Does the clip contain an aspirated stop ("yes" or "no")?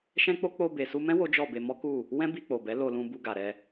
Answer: no